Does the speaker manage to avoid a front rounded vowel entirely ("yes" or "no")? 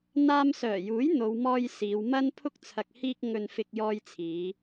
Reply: no